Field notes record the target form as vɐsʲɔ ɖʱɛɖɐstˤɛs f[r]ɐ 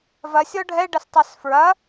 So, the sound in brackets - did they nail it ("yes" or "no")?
no